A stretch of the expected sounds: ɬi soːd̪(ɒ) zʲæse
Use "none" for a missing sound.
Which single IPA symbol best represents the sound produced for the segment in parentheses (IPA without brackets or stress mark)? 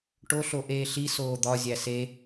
ɒ